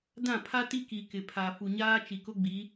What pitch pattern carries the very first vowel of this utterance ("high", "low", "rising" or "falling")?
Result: falling